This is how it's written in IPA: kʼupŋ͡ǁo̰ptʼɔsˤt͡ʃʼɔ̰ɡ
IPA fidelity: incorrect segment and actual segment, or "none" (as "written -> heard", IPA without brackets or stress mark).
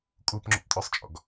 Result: none